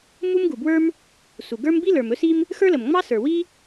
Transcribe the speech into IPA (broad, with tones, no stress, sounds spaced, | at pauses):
m u˥ m ɡ u˨ b w ə˞˥ m | s u˨ ɡ ə˞˥ m b i˥ l ə˞˨ m ɵ˥ s i˥ m | x ə˞˥ l ə˨ m ŋ͡m ɑ˥ s ə˞˨ w i˥